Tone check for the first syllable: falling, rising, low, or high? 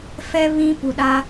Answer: low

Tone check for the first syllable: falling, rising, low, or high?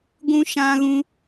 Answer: high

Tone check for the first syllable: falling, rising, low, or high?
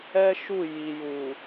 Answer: high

